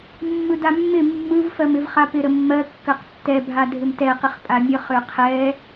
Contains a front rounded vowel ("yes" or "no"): yes